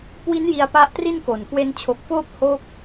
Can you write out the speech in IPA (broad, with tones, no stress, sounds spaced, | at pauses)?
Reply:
k w i˦˥ n j i˧ a̯ p a˦˥ ʔ t r i˥˩ n k o˨˩ n k w e˧ n t͡ɕʰ o˨˩ k̚ f oː˥˩ p̚ h o˦˥ k̚